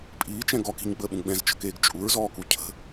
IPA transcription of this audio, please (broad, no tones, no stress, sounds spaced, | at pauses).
pʼ iː t͡ʃ ɛ̃ ɡ ɔ k i̤ ɲ ɡ͡b əː ɓ ũ ɡ͡b ɛ̃ z t͡ʃ ə̤ k eː ɡ t͡ʃʼ u ɹ z ɔː k u cʰ ə̤